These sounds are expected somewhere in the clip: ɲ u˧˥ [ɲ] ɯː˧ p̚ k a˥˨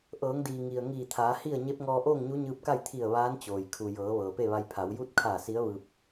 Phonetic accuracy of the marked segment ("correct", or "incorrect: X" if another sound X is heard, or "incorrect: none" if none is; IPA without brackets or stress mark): correct